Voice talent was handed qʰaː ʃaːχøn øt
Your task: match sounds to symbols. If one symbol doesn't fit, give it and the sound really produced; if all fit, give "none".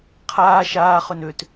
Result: none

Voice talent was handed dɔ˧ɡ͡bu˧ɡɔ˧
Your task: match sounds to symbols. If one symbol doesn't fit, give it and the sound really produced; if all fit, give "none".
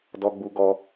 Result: none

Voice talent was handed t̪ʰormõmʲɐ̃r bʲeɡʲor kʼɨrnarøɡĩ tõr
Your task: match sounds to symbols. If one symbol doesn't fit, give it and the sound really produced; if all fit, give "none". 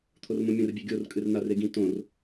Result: ø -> e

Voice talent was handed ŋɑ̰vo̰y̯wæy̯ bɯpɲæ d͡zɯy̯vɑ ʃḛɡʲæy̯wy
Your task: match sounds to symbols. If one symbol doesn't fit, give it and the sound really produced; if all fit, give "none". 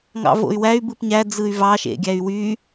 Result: none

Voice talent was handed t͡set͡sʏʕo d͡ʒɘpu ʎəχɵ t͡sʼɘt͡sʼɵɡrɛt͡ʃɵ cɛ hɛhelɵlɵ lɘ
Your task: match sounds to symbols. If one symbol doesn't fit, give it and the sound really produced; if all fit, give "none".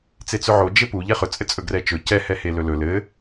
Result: ə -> ɛ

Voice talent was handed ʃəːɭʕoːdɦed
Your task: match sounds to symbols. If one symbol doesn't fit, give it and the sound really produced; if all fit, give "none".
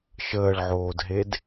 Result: none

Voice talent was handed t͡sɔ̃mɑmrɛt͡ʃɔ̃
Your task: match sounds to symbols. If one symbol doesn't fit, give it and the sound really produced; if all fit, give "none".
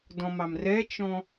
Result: t͡s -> d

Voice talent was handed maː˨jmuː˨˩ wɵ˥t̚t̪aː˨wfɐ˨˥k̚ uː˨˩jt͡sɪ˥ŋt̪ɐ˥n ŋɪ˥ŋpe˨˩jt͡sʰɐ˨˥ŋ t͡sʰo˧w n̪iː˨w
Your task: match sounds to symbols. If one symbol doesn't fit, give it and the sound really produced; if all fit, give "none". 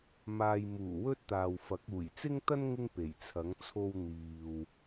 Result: none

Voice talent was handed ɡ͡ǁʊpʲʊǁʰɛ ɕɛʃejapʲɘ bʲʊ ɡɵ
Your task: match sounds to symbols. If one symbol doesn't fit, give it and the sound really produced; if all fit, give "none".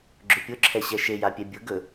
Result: ɘ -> ɛ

